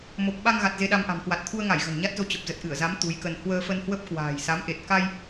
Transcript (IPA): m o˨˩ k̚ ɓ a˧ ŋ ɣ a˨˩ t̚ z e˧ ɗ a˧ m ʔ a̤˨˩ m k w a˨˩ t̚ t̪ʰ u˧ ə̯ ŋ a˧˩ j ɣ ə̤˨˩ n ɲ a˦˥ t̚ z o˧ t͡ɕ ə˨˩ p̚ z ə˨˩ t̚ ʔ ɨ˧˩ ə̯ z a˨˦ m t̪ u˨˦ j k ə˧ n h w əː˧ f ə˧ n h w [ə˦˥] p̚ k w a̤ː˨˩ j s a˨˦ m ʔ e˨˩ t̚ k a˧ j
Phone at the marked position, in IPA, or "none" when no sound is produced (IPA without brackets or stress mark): ə˦˥